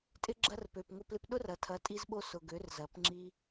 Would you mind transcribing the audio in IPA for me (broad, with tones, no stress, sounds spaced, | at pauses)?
tʼ ɪ˧ ɡ͡ǁ ɐ˧ r p ø˨ p ŋ ʊ˧ p l ɪ˧ p ɗ ʊ˦ r ɐ˨ tʰ ɐ˨˦ tʼ i˧ z ɓ o˧ s ʊ˨ ɡ ø˨˦ r z ɐ˨˦ p ŋ͡ǁ i˧